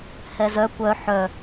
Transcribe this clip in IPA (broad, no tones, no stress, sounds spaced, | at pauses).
h ɛ z œ kʷ œ ħ œ